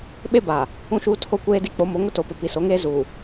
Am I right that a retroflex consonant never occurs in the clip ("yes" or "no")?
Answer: yes